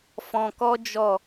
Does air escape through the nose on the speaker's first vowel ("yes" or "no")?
yes